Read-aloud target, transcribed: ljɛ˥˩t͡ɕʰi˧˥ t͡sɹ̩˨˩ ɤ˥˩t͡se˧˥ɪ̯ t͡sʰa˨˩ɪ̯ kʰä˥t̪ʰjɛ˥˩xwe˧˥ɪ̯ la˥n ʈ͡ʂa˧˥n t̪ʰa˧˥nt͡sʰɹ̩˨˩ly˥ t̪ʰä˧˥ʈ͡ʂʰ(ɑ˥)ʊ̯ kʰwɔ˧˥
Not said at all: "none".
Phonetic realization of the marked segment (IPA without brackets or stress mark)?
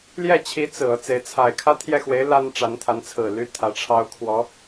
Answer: ɑ˥